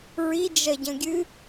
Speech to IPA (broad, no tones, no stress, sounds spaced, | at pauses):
ɹ i d͡ʒ ɐ ɟ ɐ̃ ɡʲ ɨ